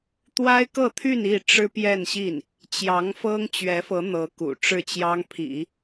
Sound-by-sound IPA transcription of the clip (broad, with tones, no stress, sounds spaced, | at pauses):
t̪ w a˥ ɪ̯ k ɤ˥˧ t̪ʰ y˥˧ n i˥˩ ʈ͡ʂ ɻ̩˥ p j ɛ˥˧ n ɕ i˥˩ n | t͡ɕ j ɑ˧˥ ŋ f ɤ˥ ŋ t͡ɕ ɥ ɛ˧˥ f ɤ˧˥ n̪ ɤ˧˥ k ṵ˨˩ ʈ͡ʂ ɻ̩˥˩ t͡ɕ j ɑ˥ ŋ pʰ ḭ˨˩˦